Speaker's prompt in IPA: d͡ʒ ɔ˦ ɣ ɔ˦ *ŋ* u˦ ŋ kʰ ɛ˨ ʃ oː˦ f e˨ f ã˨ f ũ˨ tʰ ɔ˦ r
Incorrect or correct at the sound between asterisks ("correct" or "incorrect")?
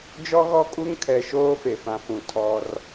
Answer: incorrect